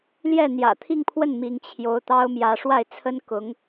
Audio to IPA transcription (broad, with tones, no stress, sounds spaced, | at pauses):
l j ɛ˥˩ n̪ j ä̰˨˩ t̪ʰ i˥˧ ŋ pʰ w ə˥˩ n m i˧˥ ŋ t͡ɕʰ j o˧˥ ʊ̯ t̪ ɑ˥ ʊ̯ m j ä˧˥ ʂ w a˥˩ ɪ̯ t͡sʰ ə˥ n k ʊ˧˥ ŋ